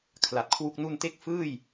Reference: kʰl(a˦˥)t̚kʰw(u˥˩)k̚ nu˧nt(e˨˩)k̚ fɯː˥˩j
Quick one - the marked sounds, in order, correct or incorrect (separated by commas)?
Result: incorrect, correct, incorrect